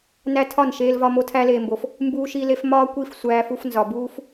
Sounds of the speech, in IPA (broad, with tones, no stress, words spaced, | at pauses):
næ˧ tʰɒ˦˨nʃeː˧lvɒ˧ mo˧tʰæ˧leː˨mbo˨f | mbuː˧ʃi˧le˧f mɒː˦kʷi˦˨f sʷæː˧fu˧f nzɒ˨buː˦f